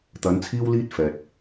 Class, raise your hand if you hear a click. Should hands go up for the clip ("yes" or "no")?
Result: no